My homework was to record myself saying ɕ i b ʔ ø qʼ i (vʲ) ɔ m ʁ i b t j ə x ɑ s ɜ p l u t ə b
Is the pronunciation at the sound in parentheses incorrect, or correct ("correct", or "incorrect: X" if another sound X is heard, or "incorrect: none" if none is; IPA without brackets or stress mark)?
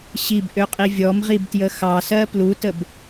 correct